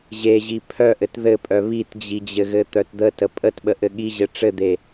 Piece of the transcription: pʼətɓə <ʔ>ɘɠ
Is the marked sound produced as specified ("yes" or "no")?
yes